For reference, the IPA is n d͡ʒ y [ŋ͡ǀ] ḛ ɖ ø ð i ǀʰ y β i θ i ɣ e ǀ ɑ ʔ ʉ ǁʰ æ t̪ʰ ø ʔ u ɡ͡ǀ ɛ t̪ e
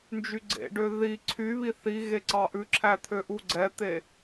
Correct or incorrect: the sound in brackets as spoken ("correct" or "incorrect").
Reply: incorrect